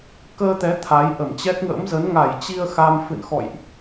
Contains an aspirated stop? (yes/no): yes